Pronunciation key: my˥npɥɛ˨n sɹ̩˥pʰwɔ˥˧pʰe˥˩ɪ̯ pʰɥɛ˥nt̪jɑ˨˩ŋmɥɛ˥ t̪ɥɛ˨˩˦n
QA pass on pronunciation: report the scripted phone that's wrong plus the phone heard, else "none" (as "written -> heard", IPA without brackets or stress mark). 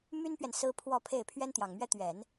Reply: none